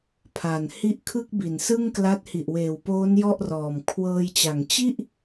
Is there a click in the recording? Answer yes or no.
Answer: no